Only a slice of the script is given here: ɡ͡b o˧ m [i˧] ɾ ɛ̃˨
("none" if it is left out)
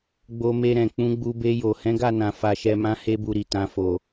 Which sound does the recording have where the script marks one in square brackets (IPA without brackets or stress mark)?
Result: e˧